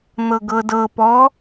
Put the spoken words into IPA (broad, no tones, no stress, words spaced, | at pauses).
n̪ɤɡɤdɤ pɔ